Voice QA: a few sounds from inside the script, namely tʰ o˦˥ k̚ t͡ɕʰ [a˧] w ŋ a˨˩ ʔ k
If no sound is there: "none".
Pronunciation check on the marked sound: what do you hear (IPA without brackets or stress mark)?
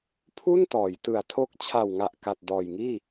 a˨˩